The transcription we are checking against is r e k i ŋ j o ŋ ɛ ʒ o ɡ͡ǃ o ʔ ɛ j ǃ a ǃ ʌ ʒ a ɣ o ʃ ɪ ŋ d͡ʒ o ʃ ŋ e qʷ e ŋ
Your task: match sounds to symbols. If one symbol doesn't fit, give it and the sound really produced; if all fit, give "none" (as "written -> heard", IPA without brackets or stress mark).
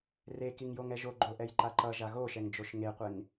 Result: ɪ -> ɛ